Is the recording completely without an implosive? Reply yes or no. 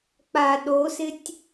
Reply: no